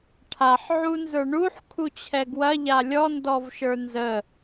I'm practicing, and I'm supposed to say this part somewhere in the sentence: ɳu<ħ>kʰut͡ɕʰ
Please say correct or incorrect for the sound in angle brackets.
correct